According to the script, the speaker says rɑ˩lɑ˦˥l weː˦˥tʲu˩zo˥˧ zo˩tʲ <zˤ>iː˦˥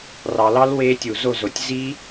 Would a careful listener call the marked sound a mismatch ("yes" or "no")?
yes